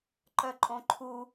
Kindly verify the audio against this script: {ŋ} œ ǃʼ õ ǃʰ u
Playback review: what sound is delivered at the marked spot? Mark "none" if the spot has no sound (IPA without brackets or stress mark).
ǃ